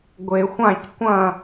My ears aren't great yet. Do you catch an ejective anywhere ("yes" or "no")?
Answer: no